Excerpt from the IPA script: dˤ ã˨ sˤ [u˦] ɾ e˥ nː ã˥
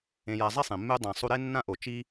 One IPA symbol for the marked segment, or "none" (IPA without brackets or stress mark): u˦